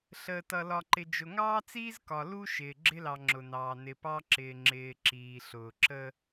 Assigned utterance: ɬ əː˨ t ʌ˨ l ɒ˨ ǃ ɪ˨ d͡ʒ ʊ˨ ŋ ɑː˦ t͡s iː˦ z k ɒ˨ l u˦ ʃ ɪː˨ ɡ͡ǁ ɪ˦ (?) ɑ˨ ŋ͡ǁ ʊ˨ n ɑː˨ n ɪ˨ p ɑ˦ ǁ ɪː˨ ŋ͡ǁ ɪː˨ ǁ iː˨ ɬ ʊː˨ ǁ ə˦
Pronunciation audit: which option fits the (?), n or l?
l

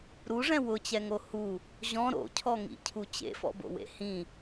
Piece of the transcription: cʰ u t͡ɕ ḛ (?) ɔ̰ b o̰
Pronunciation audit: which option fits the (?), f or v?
f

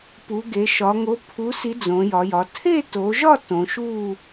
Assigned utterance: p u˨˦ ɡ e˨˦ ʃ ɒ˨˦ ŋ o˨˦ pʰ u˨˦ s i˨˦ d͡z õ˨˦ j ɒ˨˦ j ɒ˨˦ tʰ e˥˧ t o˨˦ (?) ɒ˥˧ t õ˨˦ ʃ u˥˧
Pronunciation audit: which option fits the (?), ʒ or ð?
ʒ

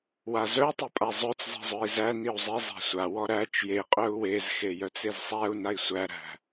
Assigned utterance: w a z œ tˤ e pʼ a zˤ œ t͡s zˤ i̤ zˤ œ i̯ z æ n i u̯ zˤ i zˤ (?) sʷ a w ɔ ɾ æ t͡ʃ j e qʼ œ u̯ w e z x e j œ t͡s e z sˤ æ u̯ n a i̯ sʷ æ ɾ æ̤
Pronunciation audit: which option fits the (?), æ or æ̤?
æ̤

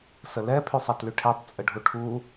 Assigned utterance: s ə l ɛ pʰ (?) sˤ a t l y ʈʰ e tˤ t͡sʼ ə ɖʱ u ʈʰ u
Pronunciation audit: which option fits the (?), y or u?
y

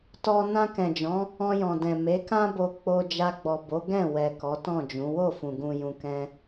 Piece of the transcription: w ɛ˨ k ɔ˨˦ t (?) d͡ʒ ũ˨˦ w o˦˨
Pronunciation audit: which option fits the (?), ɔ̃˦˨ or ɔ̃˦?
ɔ̃˦˨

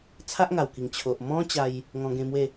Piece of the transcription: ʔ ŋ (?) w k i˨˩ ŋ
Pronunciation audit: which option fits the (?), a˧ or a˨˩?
a˨˩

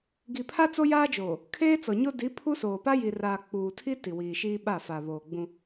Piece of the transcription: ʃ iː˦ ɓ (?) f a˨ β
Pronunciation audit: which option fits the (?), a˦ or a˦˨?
a˦˨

